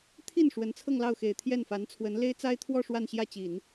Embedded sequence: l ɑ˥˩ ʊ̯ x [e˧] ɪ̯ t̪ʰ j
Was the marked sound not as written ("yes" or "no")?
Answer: yes